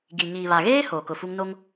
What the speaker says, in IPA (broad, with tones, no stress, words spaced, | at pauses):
ɡi˨ ɲiː˨βa˨ ɣeː˦ hoː˨kʊ˨fu˦ŋ no˦ŋ